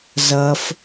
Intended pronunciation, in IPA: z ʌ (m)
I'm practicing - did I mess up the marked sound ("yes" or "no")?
yes